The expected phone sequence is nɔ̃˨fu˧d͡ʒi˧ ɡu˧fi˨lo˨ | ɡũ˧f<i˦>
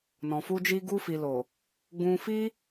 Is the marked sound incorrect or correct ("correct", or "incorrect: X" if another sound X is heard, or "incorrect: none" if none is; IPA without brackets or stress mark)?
correct